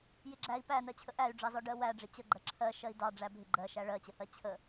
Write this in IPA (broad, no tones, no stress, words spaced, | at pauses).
jɪɡ͡ǁæi̯ pænɜt͡ɕʰə ʔæy̯ɖ͡ʐɑzɔ ɖɜwæɖ͡ʐɪ t͡ɕəɡ͡ǃɜ ǁʰɜ ʃɜi̯dɑ ɖ͡ʐæbʱɪ ɡ͡ǃɜʃæ ɭɜt͡ɕəhɜ t͡ɕʰə